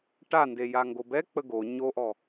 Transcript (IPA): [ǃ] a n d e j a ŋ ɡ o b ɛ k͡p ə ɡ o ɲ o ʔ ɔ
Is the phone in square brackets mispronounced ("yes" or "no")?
yes